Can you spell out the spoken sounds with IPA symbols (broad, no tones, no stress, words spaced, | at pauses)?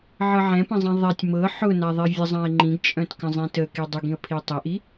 ʕɤʕɛ̃pə̃zˤĩ ðˤɛtʲ mɤ ħʊnaðˤi vʲəzˤãɪ̯ ŋ͡ǃĩɡt͡ʃʼœ̃tkə̃ zˤĩtəki dˤəɡĩə̯ pʰitˤiʔi